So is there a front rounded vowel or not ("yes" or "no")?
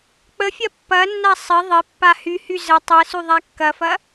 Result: yes